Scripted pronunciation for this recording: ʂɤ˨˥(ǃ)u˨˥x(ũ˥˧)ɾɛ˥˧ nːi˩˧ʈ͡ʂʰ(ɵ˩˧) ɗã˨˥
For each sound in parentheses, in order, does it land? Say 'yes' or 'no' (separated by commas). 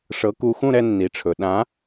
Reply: no, yes, yes